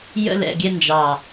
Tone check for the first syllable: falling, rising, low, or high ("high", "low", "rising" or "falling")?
high